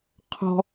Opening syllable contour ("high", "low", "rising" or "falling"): low